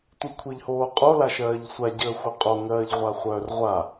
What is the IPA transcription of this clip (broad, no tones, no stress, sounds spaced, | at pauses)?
tʷ i kʷʰ i ʎ h oː qʼ o l a ʃ ɜː ʎ sʷ a ɟ əː xʷ œ qʼ o ŋ ɜː ʎ ʁʷ a χʷ œː r ʁʷ a